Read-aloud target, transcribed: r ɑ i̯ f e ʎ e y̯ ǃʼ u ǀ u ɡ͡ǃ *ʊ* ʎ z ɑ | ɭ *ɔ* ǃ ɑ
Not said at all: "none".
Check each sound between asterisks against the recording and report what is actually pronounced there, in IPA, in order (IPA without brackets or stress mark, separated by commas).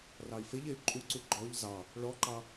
ɔ, ɔ